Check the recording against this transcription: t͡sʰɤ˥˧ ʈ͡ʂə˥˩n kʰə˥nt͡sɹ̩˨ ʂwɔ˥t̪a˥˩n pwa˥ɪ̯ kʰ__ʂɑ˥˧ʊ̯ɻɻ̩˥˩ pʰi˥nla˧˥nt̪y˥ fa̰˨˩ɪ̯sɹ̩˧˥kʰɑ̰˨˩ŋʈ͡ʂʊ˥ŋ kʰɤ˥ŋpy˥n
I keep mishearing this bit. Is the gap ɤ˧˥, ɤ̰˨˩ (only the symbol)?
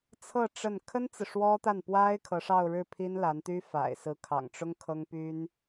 ɤ˧˥